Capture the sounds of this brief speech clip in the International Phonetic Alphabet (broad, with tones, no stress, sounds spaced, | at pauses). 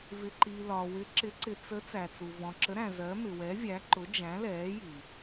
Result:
v ɪ˨ ǃ i˨ l ɒ˨ w ɪ˨˥ ǁ ɪ˨˥ ǀ ɪ˨ t͡s ə˨˥ t͡s æ˨ t͡s u˨ v ɔ̃˨ ǁ ə˨˥ ɾ æ̃˨ z ɜ˨˥ m ɪ˨ w ɛ˨˥ vʲ æ˨˥ ǃ ʊ˨˥ d͡ʒ æ̃˨˥ l ɛː˨˥ j i˨